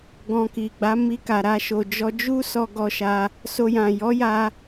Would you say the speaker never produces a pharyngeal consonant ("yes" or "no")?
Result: yes